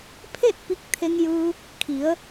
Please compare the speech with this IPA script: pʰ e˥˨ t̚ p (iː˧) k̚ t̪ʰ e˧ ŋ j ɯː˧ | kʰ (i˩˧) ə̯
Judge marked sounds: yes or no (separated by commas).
no, yes